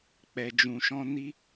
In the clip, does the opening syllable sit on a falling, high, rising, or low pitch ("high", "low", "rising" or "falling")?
low